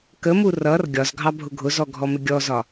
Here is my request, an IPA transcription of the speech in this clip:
k ə m u r ʌ r ɡʲ ɒ z ɡʱ ɑ bʱ ʊ ɡʱ ʊ z ɔ ɡʱ ɔ m ɪ ɡʲ ɔ z ɒ

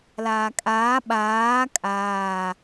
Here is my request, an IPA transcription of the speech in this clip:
l aː kʼ aː ɓ aː kʼ aː

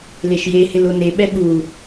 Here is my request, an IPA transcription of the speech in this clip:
l e ʃ j e h ɪ l o n e ɓ ɛ ɓ u

